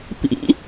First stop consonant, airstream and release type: plain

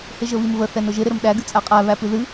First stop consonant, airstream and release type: implosive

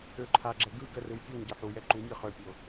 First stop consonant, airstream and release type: click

